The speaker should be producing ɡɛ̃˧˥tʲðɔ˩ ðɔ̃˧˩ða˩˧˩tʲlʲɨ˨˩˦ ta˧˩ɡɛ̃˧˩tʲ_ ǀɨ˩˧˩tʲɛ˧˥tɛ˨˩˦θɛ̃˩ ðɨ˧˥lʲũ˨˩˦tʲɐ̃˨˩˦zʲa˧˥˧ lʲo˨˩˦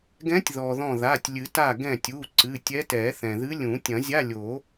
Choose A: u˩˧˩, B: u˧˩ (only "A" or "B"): A